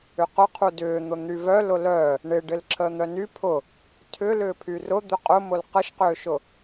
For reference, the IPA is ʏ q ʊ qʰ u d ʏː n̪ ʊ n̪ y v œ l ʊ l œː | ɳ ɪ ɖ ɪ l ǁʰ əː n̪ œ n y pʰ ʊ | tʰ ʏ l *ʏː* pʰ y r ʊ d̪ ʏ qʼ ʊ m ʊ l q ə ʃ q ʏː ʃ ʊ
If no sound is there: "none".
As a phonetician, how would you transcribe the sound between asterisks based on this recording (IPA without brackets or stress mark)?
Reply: ʏː